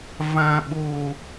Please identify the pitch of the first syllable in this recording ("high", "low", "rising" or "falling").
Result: low